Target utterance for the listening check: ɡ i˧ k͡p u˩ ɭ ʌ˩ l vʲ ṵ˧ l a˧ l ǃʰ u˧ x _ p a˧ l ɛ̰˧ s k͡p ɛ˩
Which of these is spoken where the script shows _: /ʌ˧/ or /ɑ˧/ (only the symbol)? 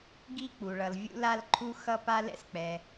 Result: ʌ˧